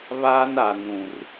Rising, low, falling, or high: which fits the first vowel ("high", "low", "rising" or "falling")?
high